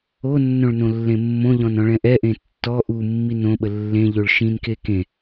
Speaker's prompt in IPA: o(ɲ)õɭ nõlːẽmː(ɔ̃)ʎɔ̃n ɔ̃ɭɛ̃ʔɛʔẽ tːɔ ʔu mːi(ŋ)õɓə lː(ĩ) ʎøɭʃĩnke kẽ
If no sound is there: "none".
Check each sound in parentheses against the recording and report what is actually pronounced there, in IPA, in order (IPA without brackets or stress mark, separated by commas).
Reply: nː, õ, n, ẽ